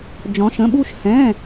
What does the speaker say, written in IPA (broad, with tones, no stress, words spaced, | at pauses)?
d͡ʒɔ̃˩˧ʃə̃˩˧˩ɓu˦˨ʃ hɛ̃˩˧˩